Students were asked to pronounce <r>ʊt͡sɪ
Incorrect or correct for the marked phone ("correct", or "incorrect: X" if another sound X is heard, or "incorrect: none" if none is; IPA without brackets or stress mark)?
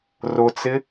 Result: correct